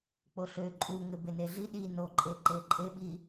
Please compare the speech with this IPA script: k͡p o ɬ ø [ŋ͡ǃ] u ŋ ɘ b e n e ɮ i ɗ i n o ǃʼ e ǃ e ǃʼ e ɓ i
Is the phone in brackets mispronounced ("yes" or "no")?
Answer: yes